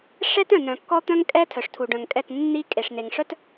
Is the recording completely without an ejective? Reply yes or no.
no